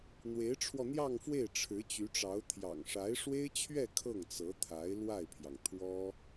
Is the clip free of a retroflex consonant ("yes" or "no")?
no